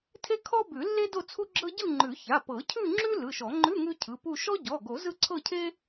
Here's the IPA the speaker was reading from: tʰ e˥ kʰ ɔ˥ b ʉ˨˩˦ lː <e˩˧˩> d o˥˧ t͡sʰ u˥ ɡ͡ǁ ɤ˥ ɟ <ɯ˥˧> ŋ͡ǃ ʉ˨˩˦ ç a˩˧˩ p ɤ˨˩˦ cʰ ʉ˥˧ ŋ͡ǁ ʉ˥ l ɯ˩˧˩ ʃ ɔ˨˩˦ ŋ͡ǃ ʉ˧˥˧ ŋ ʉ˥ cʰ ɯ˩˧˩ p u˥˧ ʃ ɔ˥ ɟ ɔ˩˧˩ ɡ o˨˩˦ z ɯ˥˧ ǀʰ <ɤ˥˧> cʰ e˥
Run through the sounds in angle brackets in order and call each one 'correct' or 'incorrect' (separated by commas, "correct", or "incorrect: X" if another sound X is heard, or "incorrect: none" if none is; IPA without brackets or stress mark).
incorrect: e˥, correct, correct